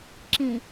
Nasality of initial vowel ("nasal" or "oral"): nasal